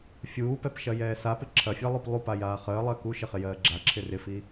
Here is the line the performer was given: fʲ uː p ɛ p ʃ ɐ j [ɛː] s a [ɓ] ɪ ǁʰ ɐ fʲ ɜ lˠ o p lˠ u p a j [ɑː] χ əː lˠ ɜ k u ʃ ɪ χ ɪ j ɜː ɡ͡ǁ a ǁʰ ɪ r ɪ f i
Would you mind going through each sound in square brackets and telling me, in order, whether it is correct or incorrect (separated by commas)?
correct, incorrect, incorrect